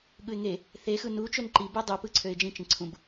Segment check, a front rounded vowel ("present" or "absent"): present